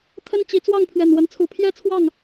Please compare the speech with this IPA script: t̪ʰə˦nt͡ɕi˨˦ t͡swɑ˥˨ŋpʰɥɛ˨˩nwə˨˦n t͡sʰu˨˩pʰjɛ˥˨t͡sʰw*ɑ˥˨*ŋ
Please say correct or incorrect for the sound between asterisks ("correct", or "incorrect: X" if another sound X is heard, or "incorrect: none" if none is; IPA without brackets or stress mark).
correct